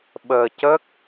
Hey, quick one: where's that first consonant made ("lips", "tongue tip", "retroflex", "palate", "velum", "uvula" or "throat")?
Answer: lips